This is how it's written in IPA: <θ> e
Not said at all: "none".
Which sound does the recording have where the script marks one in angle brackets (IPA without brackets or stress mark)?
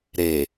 ɾ